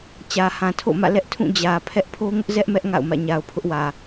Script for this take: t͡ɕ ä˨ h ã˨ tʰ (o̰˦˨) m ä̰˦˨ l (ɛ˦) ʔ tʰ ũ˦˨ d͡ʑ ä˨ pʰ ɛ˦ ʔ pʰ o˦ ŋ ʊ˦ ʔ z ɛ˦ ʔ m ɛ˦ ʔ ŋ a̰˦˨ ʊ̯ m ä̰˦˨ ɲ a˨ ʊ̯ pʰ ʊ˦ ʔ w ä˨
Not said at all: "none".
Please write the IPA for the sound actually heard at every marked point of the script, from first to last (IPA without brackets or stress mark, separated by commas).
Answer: o̰˦˨, ɛ˦